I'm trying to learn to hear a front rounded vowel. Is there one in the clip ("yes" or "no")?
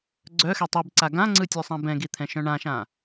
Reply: yes